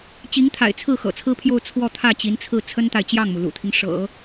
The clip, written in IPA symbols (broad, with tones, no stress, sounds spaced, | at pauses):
t͡ɕ i˧˥ ŋ t̪ʰ a̰˨˩ ɪ̯ t͡sʰ ɹ̩˥˩ x ɤ̰˨˩ t͡sʰ ɹ̩˥ pʰ j o˥˧ ʊ̯ t͡sʰ w ɔ˥˧ t̪ʰ ä˥˩ t͡ɕ i˧˥ n t͡sʰ ɹ̩˥˩ t͡sʰ ə˥ n t̪ a˨ ɪ̯ t͡ɕ j ɑ˥˩ ŋ m u˩ l ṵ˨˩ t̪ʰ i˦ ŋ ʂ ɤ̰˨˩˦